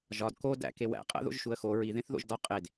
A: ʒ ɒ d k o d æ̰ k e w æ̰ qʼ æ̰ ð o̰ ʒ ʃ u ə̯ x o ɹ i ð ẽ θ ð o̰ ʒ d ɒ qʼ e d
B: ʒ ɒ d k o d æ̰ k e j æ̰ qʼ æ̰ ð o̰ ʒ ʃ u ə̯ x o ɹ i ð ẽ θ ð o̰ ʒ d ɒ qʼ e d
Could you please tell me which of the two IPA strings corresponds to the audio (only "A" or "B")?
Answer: A